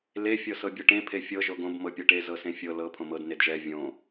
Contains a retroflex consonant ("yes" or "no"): yes